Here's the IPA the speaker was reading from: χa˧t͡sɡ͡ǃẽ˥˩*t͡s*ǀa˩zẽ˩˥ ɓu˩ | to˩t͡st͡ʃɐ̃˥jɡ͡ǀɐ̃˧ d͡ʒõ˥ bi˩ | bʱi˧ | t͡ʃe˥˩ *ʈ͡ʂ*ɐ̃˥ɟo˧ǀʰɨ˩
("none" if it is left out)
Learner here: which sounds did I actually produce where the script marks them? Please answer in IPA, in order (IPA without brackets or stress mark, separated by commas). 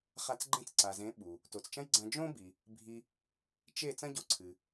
t͡s, t͡s